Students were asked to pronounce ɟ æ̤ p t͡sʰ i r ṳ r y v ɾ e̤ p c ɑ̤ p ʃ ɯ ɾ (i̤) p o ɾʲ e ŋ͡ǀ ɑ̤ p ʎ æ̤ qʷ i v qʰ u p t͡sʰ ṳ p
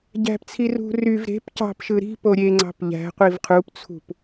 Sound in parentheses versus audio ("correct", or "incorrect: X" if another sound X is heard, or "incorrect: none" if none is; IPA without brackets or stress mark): correct